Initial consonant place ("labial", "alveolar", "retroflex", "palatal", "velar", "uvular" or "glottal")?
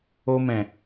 labial